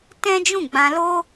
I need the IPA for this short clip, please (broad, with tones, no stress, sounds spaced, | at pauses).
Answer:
t ɛ̃˦ d͡ʒ ũ˦˨ ɡ͡b ã˧ l o˦